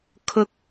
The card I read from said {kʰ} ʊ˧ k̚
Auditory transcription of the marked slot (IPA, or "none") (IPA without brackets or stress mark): kʰ